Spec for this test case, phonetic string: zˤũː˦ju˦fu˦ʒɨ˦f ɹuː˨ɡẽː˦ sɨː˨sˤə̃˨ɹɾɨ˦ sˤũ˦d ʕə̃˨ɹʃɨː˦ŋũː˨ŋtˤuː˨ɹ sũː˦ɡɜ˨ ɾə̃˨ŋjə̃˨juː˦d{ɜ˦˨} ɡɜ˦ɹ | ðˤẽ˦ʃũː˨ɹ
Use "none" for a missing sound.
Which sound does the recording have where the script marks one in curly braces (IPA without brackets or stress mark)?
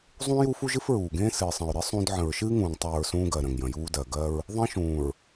ɜ˨